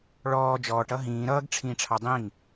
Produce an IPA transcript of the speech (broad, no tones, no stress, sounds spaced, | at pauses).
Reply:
ɭ ɔː d͡ʒ ɔː ʈ ʌ ɦ ĩː ɾ ʌː ɡ ʈ͡ʂʰ ĩː ʈ͡ʂʰ ɑ dˤ ĩ ŋ